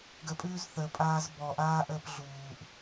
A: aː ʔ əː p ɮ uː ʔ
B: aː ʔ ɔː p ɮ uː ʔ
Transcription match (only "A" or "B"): A